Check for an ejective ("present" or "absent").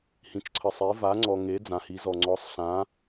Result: absent